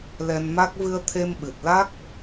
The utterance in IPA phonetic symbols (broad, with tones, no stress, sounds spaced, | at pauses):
l ɛ˧ n m a˦˥ k̚ v ɨ˧ ə̯ t̪ʰ e˧ m ɓ ɨ˨˩ t̚ l a˦˥ k̚